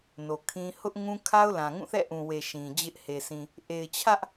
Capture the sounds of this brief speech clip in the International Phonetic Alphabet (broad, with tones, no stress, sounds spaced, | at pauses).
n o˨ kʰ ĩ˦ h ʊ˦ ʔ ŋ ũ˦ kʰ a˦ ʊ̯ l ã˨ ŋ ũ˦˨ θ ɛ̰˦˨ ʔ ũ˨ w e˨ ʃ ĩ˨ d͡ʑ ɪ˦ ʔ h e˨ s ĩ˨ | ʔ e˨ ɪ̯ t͡ɕʰ ä˦ ʔ